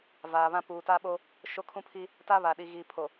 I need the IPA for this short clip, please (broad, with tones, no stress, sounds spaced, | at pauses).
v aː˨ β ã˦ p uː˨ t a˦ ɓ o˦ | ʃ o˦ kʰ ũ˦ pʰ i˦ | t a˦ β a˨ ɗ i˨ ɣ iː˨ pʰ o˨